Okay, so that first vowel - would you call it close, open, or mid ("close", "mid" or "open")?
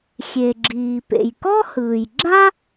mid